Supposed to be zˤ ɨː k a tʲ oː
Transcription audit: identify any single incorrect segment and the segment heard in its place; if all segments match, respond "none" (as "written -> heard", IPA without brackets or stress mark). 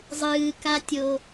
oː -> o